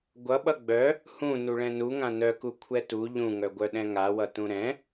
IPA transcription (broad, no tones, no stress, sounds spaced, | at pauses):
ɡʷ ʌ ɓ ʌ ɡ͡b œ | h ũ n u ɭ ɛ̃ n u ŋ ã n œ k u kʷʰ ɛ t u ʎ ũ ŋ œ ɡʷ œ ɗ ɛ̃ ŋ a w ʌ t ũ ɾ ɛ̃